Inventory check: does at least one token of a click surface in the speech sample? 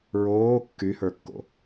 no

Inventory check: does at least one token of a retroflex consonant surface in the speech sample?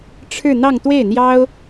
yes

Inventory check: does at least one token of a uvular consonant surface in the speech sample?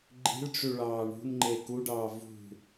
no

